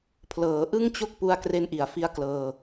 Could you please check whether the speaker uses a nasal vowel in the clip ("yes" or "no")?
no